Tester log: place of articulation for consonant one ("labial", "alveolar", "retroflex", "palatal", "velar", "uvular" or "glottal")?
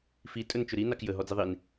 labial